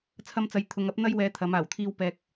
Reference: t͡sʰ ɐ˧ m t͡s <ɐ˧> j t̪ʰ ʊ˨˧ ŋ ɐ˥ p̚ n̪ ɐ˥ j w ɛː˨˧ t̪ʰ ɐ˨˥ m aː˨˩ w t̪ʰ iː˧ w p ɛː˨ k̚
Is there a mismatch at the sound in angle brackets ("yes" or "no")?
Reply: yes